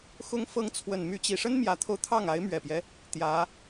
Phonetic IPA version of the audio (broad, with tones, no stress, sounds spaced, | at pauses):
x ʊ˧˥ ŋ f ɤ˧˥ ŋ t͡sʰ w ə˨˩ n m y˧˥ t͡ɕ i˨˩ ʂ ə˥ n m j ä˧˥ t̪ʰ o˧ ʊ̯ t̪ʰ ɑ˥˩ ŋ a˧˥ ɪ̯ m ɥ ɛ˨˩ p j ɛ˦ | t̪ j ä˧˥